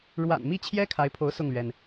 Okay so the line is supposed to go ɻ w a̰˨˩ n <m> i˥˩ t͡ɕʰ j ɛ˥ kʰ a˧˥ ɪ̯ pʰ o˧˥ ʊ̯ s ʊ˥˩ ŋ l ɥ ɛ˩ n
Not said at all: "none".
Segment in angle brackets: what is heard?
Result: m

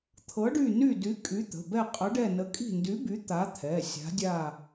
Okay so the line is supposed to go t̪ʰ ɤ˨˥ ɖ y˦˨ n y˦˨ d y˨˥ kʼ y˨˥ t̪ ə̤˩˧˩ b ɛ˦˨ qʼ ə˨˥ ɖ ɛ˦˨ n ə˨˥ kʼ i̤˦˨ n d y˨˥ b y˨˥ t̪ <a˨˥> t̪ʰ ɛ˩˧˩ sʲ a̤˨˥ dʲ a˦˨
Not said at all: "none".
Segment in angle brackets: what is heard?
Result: a˨˥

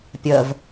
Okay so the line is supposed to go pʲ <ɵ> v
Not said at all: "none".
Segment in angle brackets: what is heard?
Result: ə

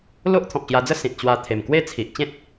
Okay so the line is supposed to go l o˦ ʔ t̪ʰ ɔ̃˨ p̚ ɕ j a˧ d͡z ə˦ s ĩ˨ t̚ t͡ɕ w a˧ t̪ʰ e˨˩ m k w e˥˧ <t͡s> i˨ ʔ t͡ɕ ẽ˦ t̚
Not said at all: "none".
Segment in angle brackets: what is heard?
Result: t͡sʰ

